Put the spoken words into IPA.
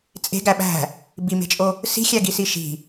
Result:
t͡sʼe̤ɡæ ɓæ̤ | bime̤t͡ʃʼo | si̤ xʲæɡisiʃi̤

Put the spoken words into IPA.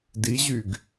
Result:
diʑyɡ

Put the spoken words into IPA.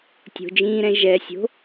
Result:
tʲo̤d͡ʒĩːɾɛ̃ ʒɛsʲo̤

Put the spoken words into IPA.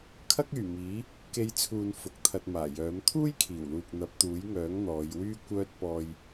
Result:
kʰɐ˥k̚yː˨˩miː˨˥ | ke˧jt͡sʰuː˨n fʊ˨˥k̚t̪ʰɐ˧t̚maː˨˩ jœː˨˥m t̪ʰuː˥jkʰiː˨˩wluː˨k̚ n̪ɐ˨˥p̚t̪uː˨˥jŋœː˨˥ŋ n̪ɔː˨˧jwyː˥kʷœː˥t̚ pɔː˧j

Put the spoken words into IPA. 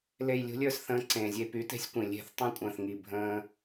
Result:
le˧˩jlʲṳ˦ lʲə˞˥˨sθə̃ː˨˥ǀẽː˩zʲe˧˩ py˨˥te̤˦sʲkʷĩ˩lʲe̤˥˨θ tˤĩ˥˨kʷʼə̃ː˧˩θŋi˧˩ bʱə̃ː˦

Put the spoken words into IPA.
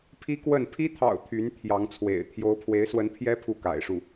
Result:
pʰi˥kwə˥˩n pʰi˥t̪ʰɑ̰˨˩ʊ̯ t̪ʰy˧˥nt̪ʰjɑ˧˥ŋt͡sʰwḛ˨˩ɪ̯ t̪ʰjo˥ʊ̯ pʰwe˧˥ɪ̯swə˧˥npʰjɛ˥ pʰu˥˩ka̰˨˩ɪ̯ʂu˥˩

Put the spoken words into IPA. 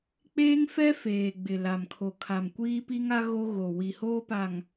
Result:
k͡peː˦ŋfɛ˦ feː˨ ɡ͡bɪ˨la˨mkʰo˨ kʰa˨m kʷiː˦pi˦ŋa˦ ɣo˦ɣo˨ wi˨hoː˦pa˨ŋ

